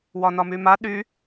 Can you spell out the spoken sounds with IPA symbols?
w ɒ n ɒ m y m a ɗ y

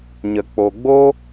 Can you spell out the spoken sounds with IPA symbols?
ɲ ə˨ k͡p o˨ ɡ͡b o˦

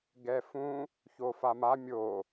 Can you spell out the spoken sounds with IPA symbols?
ɡ ɛ f ũ | ç o f a m a mʲ o

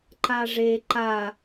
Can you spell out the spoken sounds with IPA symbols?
ǃ a ʐ e ǃ a

